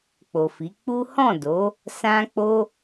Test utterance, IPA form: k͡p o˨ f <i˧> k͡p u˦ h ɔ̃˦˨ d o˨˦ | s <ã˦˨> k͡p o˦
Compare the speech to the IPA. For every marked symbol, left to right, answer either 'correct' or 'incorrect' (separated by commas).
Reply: incorrect, incorrect